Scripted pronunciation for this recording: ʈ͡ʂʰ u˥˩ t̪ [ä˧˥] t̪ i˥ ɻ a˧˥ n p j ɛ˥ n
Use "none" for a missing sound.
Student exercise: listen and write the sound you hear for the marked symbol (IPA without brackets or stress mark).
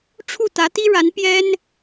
ä˧˥